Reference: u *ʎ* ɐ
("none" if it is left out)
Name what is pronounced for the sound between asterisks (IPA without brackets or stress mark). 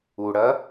ɽ